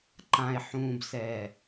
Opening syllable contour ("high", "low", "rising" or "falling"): low